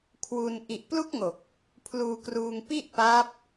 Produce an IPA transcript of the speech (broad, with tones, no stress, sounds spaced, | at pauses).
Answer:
kʰ w u˧ n ʔ i˨˩ ʔ p l u˥˩ k̚ ŋ o˨˩ k̚ | pʰ l uː˧ k r uː˧ ŋ p i˥˩ ʔ p a˦˥ p̚